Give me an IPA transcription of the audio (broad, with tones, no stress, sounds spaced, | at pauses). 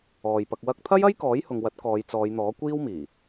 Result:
ɔː˨ j p ɐ˧ k̚ w ɐ˥ k̚ t̪ʰ ɐ˥ j ɐ˥ j k ɔː˨˥ j h ʊ˨ ŋ w ɐ˨˥ t̚ k ɔː˨˧ j t͡s ɔː˨˧ j n̪ ɔː˨˥ kʷ iː˥ w m iː˨˩